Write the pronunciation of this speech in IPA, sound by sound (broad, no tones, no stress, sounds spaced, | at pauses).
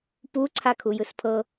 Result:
p u ǀʰ a kʰ u j ɯ s pʰ ɤ